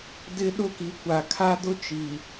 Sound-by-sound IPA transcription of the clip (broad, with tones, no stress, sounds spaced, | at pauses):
d ɪ˦ ɗ ʊ˦˨ k i˨ kʷ a˨ kʰ a˦ d ʊ˦ t͡ʃ i˨